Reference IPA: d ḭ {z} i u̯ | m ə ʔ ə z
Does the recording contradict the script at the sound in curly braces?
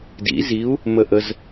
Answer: no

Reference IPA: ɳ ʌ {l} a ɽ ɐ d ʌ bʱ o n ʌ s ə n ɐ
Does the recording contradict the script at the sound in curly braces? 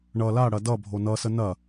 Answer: no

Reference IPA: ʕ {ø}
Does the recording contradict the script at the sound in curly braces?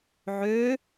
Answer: no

